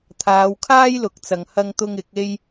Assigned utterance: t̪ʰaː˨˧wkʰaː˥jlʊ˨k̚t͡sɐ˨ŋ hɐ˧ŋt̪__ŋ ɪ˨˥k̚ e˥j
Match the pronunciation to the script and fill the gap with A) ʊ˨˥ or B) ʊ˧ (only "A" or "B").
B